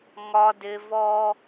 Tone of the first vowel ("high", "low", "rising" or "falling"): high